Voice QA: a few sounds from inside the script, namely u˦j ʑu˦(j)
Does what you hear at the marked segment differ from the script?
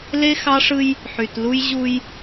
no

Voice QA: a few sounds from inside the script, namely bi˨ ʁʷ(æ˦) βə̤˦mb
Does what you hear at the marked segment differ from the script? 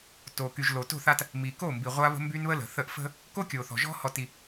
yes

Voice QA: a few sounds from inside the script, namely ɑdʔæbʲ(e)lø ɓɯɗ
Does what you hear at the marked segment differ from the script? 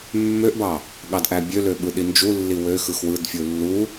yes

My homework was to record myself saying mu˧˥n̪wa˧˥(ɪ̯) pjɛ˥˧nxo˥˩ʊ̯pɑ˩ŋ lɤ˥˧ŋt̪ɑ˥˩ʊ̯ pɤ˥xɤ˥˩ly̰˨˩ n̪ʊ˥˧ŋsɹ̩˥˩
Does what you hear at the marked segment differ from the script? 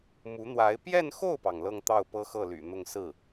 no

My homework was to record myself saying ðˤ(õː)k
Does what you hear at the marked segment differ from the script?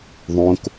yes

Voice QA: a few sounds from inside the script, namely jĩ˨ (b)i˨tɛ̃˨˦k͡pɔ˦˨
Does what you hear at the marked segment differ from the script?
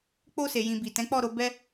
no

